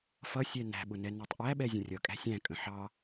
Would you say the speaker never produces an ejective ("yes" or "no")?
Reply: no